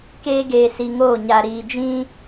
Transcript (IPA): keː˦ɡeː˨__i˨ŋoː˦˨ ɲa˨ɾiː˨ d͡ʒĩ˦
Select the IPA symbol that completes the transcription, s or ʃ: s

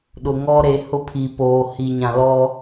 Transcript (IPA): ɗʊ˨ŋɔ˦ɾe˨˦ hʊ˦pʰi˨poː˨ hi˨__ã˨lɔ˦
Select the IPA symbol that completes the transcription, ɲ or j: ɲ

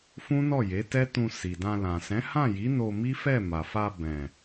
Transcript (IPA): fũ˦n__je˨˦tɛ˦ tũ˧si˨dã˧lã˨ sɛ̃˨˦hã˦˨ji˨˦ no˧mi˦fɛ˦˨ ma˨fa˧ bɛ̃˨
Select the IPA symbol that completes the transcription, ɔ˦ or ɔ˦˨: ɔ˦˨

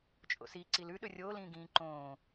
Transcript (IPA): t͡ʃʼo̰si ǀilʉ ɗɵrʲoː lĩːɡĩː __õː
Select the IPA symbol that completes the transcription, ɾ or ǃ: ǃ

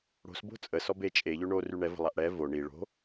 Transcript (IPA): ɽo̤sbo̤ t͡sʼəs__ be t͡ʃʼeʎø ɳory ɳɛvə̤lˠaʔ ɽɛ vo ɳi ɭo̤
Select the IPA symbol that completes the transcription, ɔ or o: ɔ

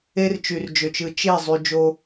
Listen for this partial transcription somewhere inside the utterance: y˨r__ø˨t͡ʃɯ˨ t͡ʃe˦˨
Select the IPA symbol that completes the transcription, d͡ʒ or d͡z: d͡ʒ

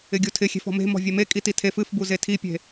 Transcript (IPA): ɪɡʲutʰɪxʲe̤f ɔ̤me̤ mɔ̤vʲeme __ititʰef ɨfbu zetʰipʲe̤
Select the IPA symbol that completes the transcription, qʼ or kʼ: kʼ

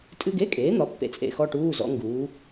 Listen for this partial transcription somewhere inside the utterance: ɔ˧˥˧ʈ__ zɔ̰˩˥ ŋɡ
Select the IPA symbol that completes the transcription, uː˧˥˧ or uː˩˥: uː˧˥˧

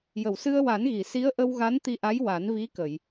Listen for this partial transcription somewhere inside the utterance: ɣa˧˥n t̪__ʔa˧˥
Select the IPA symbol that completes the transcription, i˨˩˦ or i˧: i˧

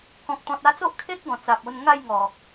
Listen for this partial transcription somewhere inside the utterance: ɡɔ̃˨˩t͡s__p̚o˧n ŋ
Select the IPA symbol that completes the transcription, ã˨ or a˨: a˨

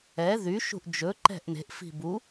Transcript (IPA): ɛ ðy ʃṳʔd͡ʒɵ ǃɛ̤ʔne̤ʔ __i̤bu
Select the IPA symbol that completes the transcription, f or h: f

